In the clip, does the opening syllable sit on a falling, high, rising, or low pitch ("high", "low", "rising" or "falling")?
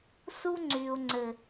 high